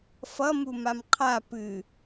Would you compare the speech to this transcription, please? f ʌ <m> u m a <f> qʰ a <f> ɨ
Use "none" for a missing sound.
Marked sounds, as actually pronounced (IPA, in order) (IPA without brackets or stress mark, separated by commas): m, m, p